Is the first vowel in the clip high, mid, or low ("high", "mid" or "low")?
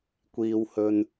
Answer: high